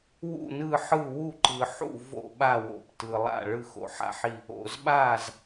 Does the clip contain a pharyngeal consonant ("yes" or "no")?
yes